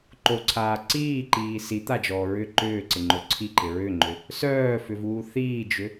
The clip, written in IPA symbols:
ǃ o ǀʰ aː ǀ iː ǃ iː s i t̪ a d͡ʒ ɔː ɹ ʏ ǃ ʏː ǀ ɪ ŋ͡ǃ o ǀʰ i ǃ ɪ ɹ ʏ ŋ͡ǃ ʏ | s œː f ʏ v uː θ iː d͡ʒ ʏ

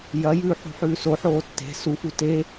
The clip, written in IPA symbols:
j ɐ j ʉː ħ ṳ ħ ʉː s o ħ oː tː e̤ s u f u t e

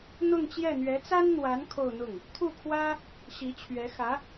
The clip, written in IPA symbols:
n̪ ʊ˥˧ ŋ t͡ɕ j ɛ˥˩ n̪ ɥ ɛ˧˥ t͡s a˥ n n̪ w a˧˥ n kʰ o˥˧ ʊ̯ n̪ ʊ˥˩ ŋ | t̪ʰ u˥˩ kʰ w ä˥ | ɕ i˧˥ t͡ɕʰ ɥ ɛ˧˥ x ä˧˥

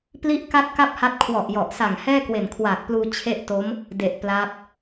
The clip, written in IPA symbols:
p l i˥˩ ʔ k a˥˩ t̚ k a˥˩ p̚ h a˦˥ t̚ kʰ w ɔ˨˩ ʔ j ɔ˨˩ ʔ s a˨˩ ŋ h ɛː˥˩ k w e˨˩ n kʰ w aː˨˩ k̚ p l uː˧ t͡ɕʰ e˥˩ ʔ t o˦˥ m | d e˨˩ ʔ p l a˦˥ p̚

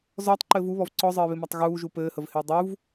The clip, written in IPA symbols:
z ɔː tˤ ǃ ɘː v u β ɔ v ǀ ɔ zˤ ɘː β ɪ m a tˤ ɣ uː ʒ u p ɘː h ə v h ɪː dˤ u v

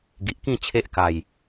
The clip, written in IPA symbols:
ɡ i˨ ʔ k ĩ˥˧ t͡ɕʰ e˦ ʔ k a˨˩ j

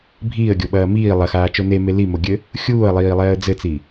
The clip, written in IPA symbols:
bʱ iː ə̯ ɡʲ o ɓ ɐː m iː lˠ ɐ x aː t͡ʃ o n e m e l i m o ɡʲ ɘ | xʲ uː ə̯ lˠ iː lˠ ɛː ə̯ d͡z ɘ t͡s i

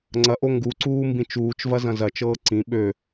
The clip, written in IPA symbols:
ŋ͡ǀ ɐ ʔ o ŋ ɡ u ǀ uː m b ĩ t͡ʃ uː t͡ʃ v ɐ z ɐ̃ z ɐ t͡ʃ ɤː ǀ ĩ ɓ ø

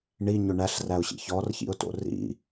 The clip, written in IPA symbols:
ɳ i ɲ ʏ ɳ æ ɬ r æ ʊ̯ ɕ ḭ ç ɔ r ç ḭ ʊ̯ t o̰ r ḭ

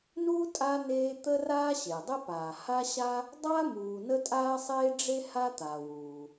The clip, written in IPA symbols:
n u˦ tʼ a˦ n eː˦ t̪ ə˥ r aː˥ ɕ e˩ dˤ ɛ˥ p aː˩ h a˦ ɕ a˦ | dˤ a˦ m uː˨ n ə˥ tʼ aː˥ sˤ eː˥ ɖ͡ʐ e˥ h a˦ t̪ a˩ w uː˩

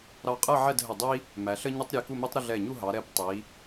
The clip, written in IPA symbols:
ɾ ɑ˧ qʼ ɜ˥˧ ʕ ɛ˥˧ d ɦ ə˧˩ dˤ i˥ | m æ˩˧ ɬ ə˥ ɲ ə˥ tˤ ɾʲ ɛ˧ k u˥˧ m i˥ tˤ ɾ ə˥˧ ɮ ɛ˧˩ ɲ u˥˧ ɦ ɑ˩˧ ɾ ɛ˧ p tˤ i˩˧

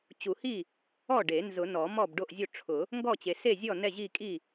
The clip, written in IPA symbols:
t͡ɕ u˨˩˦ h i˥˩ | ɔ˥˩ ɖ e˨˩˦ n z ʊ˨˩˦ n ɔ˨˩˦ m ɔ˥˩ b ɖ o˥˩ ʔ zʲ o˥˩ ʈ͡ʂʰ ʊ˨˩˦ | ŋ ɡ ɔ˥˩ t͡ɕ e˨˩˦ s e˥˩ zʲ ɔ˥˩ n ɛ˥˩ ʑ i˥˩ kʼ i˥˩

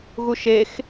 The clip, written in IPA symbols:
ɣ u ʃ e x

